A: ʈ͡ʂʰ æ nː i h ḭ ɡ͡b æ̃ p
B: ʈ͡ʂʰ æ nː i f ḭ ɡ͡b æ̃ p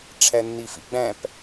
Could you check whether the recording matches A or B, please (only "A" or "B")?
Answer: B